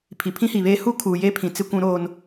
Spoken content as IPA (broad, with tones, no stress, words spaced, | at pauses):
pʰi˨pʰĩ˦hi˨βeː˦ hu˦kʰuː˨je˦ pʰĩ˨ t͡sɪ˦kʷũ˦ɾoː˦n